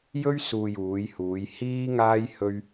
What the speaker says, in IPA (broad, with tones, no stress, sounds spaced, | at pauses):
j ɵ˥ ɥ s uː˧ j uː˨˧ j h uː˨˧ j h iː˥ ŋ aː˥ j h ɵ˥ ɥ